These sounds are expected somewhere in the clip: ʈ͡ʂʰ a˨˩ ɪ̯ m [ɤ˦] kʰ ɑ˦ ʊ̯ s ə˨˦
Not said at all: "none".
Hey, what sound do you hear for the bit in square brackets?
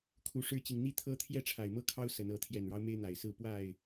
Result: ɤ˦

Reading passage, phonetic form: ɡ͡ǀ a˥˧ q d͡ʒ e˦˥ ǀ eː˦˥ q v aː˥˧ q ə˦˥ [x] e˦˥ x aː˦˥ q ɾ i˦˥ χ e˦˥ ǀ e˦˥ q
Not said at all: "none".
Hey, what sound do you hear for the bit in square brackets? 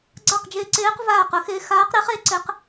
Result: x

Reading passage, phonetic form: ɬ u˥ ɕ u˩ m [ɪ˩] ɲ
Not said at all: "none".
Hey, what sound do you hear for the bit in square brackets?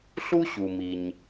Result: i˩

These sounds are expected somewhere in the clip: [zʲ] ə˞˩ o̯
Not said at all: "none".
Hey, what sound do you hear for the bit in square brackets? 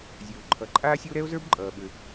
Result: zʲ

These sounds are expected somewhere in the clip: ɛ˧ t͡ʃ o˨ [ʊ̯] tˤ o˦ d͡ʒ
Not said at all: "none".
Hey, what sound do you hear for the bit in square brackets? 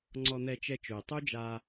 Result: ɪ̯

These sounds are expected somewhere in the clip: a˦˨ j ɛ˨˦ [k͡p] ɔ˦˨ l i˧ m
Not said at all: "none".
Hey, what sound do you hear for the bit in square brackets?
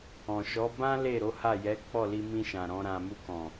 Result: k͡p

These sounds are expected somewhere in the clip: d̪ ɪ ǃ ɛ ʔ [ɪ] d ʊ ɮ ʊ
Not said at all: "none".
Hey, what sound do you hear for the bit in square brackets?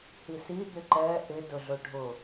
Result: ɪ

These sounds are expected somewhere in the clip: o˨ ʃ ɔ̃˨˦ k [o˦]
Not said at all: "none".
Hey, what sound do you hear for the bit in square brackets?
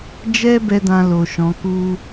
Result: u˦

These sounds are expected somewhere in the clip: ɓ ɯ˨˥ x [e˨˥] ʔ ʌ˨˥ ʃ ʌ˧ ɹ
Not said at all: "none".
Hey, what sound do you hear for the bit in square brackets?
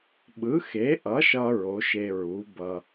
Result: e˨˥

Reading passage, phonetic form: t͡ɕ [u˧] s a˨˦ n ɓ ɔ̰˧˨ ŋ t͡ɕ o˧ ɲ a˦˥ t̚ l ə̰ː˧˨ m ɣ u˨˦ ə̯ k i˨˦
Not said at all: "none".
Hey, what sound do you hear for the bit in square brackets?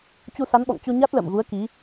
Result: u˧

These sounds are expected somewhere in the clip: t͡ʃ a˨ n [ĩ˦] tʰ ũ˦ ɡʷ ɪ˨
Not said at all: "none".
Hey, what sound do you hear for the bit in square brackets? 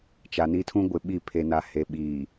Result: i˦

